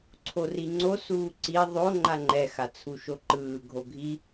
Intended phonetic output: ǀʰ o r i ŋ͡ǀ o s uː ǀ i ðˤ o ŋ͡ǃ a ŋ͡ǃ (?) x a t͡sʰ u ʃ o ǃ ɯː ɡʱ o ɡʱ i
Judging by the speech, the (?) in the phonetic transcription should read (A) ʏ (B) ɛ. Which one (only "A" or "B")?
B